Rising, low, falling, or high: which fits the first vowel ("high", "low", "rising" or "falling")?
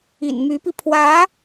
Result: low